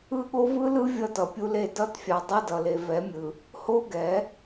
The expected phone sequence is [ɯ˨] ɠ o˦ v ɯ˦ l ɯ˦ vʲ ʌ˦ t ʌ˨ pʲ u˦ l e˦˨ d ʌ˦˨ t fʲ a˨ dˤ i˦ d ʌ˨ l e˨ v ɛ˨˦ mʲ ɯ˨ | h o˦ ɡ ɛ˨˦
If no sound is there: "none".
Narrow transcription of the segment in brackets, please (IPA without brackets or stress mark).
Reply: ɯ˦